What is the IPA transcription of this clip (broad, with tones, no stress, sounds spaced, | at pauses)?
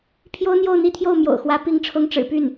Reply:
pʰ j o˥ ʊ̯ n̪ j o˥˧ ʊ̯ n̪ i˥˧ t̪ʰ j o˥˩ ʊ̯ m j o̰˨˩ ʊ̯ x w ä˧˥ p i˧˥ ŋ ʈ͡ʂʰ ʊ˧˥ ŋ ʈ͡ʂ ɻ̩˨˩ p y˥˩ n